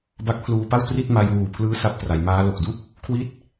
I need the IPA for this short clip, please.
b a˦˥ k̚ pʰ l uː˧ p a˥˩ w t r i˥˩ t̚ m a˧ j w uː˨˩ pʰ l ɯː˦˥ s a˦˥ p̚ t r a˩˦ j m aː˦˥ l o˨˩ k̚ d u˥˩ k̚ | kʰ w i˦˥ t̚

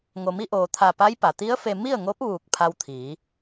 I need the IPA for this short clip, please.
ŋ o˩ m i˧ ʔ oː˩ t̪ʰ a˧˩ p a˧˥ j p a˩ t̪ i˧˥ ə̯ f e˧ m i˥˨ ə̯ ŋ o˧˥ p̚ ʋ uː˧˩ k̚ pʰ a˧ w t̪ʰ iː˩˧

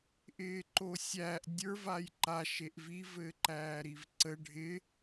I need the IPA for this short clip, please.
ʔ ɪː ǃ o sʲ æ ʔ dʲ ə˞ v a j ǃ a ʃ e ʔ v i v ɘ ǃ æː ɾ i v ǀ ə ɖʱ ɪ

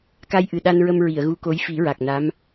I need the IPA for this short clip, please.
k a˧ j ʔ ɨ˨˩ ɗ a˧ n ɹ ə˧ m ɹ i˨˩˨ ə̯ ɣ u˧˥ k o˧˥ j f i˨˩˦ ɹ a˨˩ k̚ n a˧˥ m

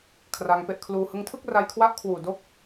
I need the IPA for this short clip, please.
kʰ r a˧ ŋ p e˦˥ ʔ kʰ l uː˧ h ɯ˧ ŋ tʰ ɯ˥˩ k̚ r a˧ j kʰ w a˦˥ ʔ kʰ w uː˨˩ d o˦˥ k̚

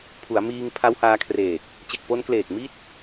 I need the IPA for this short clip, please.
pʰ u˩˦ a̯ m iː˧ ŋ pʰ a˦˥ w h aː˧ kʰ r eː˨˩ k̚ | t͡ɕ e˨˩ k̚ p o˧ n k l eː˨˩ k̚ m i˥˩ t̚

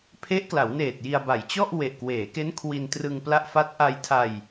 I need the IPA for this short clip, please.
pʰ e˦˥ ʔ k l a˩˦ w n eː˨˩ t̚ j i˧ a̯ b a˨˩ j t͡ɕ ɔ˥˩ ʔ w e˨˩ ʔ k w eː˩˦ k e˦˥ n kʰ w i˧ n t r ɯ˧ ŋ p l a˦˥ ʔ f a˦˥ t̚ ʔ a˧ j tʰ a˧ j

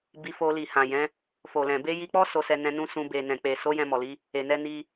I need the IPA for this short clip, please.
b i˧ f o˧ l i˨ h ã˨ j ɛ̃˨˦ | f o˨ l ɛ̃˨ b e˧ j i˧ k͡p ɔ˦ s o˧ s ɛ˧ n ɛ̃˧ n ũ˧ s ũ˧ b e˨ n ɛ̃˨ k͡p e˨ s o˨˦ j ɛ̃˧ m ɔ˨ l i˨˦ | e˨ n ɛ˧ n i˧

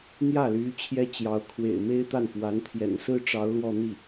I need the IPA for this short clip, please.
n̪ j ä˥˩ l y˧˥ t͡ɕʰ j ɛ˥ t͡ɕ j ɑ˧˥ ʊ̯ kʰ w ḛ˨˩ ɪ̯ m e˥ ɪ̯ t̪ a˥˩ n f w a˧˥ n t̪ʰ j ɛ̰˨˩ n s ɹ̩˥ ʈ͡ʂ ɑ˧˥ ʊ̯ l w ɔ˥˧ n̪ i˥˩

